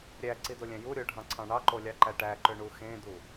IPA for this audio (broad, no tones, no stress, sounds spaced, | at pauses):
ɾʲ æ ǀ i d o lʲ æ̃ j u ɾʲ o ɖʱ ɑ̃ ǀʰ ɑ̃ ɳ ɑ ǃ o lʲ ɑ ǃ æ ʈ æ ǃ ø ɳ u x ẽ d u